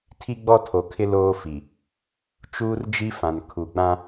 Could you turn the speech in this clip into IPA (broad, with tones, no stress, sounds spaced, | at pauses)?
tʰ i˦ ɡ͡b ɔ˦ tʰ o˨ kʰ ɪ˦ l oː˦ f i˨ | t͡ʃ uː˦ r d͡ʒ i˦ f ã˨ n kʰ u˨ ɡ͡b ã˦